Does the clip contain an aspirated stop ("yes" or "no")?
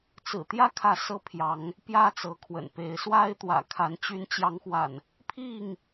yes